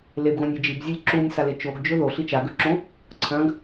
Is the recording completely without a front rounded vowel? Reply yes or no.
yes